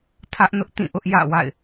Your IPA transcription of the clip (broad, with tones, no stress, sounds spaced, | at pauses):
tʰ ä˦ ʔ n ʊ˦ ʔ t ĩ˦˨ ʔ ʊ˦ ʔ j ä̰˦˨ w a̰˦˨ ɪ̯